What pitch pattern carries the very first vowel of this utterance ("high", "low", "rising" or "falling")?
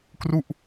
falling